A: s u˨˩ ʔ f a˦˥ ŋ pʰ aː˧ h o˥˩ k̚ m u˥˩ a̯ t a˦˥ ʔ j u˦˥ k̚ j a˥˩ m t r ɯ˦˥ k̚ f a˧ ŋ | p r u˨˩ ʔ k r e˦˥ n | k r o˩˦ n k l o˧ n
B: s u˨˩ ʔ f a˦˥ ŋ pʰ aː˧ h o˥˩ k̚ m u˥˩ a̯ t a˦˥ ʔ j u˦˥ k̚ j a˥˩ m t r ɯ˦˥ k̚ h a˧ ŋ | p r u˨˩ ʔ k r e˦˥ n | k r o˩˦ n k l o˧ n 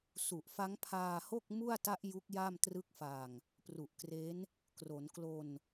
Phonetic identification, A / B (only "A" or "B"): A